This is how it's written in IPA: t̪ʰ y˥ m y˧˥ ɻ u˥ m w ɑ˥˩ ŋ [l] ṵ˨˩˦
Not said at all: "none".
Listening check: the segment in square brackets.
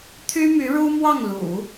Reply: l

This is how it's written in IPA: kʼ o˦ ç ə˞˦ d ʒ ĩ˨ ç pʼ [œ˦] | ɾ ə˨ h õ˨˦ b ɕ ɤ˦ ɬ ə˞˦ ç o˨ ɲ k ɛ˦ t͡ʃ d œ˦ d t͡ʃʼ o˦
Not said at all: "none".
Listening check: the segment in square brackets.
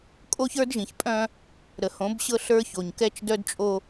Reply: œ̃˦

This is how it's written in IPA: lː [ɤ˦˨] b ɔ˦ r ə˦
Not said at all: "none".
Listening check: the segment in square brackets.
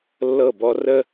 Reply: ɤ˦˨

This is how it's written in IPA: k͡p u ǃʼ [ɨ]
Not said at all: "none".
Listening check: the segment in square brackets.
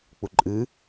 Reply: ɨ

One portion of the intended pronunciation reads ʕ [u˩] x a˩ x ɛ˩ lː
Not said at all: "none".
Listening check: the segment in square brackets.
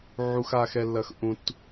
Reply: u˩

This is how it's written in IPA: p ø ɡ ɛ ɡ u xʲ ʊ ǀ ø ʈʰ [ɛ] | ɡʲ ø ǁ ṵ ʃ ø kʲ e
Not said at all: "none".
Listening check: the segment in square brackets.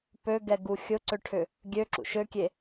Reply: ʏ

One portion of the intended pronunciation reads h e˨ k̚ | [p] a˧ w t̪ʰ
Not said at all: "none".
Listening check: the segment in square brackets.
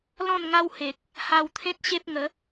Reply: h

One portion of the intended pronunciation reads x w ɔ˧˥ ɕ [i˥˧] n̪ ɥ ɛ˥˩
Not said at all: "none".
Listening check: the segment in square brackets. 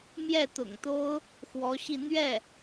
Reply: i˥˧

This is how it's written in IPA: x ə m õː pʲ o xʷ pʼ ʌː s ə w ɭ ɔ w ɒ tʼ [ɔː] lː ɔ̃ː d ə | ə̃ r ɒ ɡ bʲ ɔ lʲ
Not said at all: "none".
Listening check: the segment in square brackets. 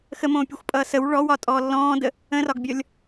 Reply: ɔː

